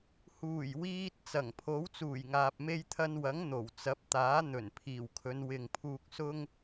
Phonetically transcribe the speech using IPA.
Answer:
huː˨˩jwiː˧t̚ t͡sɐ˨˩ŋ pʰo˨˥wt͡suː˨˩jŋaː˨p̚ me˧jt̪ʰɐ˧nwɐ˨˥ŋ n̪o˨˩wt͡sɐ˨˥p̚t̪aː˨˥ n̪ɵ˨˩n pʰiː˨˩wkʰɵ˨˧nwɪ˨ŋpʰuː˧k̚ sʊ˥ŋ

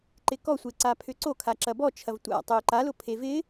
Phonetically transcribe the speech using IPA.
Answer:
ǃɪkɔsʷe ǀapʰʏǀokʰa ǁɐbɔt͡ʃʰɐv tʷa̰tˤø ǃalʊ pʰevɪ

